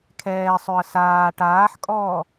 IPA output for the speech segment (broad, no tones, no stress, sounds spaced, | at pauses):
kʰ ɛː sˤ ø ə̯ s aː ʈ aː ħ kʼ ɔː